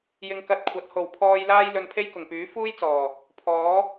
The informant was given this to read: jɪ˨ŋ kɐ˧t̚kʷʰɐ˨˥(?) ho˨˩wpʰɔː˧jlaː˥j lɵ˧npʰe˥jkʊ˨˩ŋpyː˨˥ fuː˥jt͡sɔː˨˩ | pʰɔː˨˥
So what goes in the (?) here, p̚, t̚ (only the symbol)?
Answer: t̚